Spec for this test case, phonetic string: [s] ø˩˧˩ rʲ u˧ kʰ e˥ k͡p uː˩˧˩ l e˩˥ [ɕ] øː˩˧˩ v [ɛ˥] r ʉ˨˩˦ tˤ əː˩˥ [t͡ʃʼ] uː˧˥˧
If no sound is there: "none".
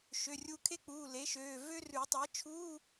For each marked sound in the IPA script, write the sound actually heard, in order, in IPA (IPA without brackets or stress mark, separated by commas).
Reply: ʃ, ʃ, ø˥, t͡ʃʰ